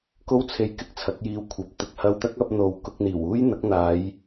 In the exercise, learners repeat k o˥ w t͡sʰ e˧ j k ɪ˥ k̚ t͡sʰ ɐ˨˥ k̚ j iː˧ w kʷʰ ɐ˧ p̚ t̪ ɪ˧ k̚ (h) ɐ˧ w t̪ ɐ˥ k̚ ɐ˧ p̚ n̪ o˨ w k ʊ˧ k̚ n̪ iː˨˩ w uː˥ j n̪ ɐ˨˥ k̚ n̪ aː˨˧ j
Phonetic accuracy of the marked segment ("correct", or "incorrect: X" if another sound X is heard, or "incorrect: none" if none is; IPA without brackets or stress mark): correct